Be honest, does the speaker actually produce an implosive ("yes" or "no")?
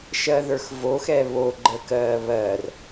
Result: no